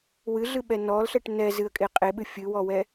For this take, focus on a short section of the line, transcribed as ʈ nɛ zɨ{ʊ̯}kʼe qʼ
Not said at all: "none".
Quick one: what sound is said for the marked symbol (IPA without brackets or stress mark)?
ə̯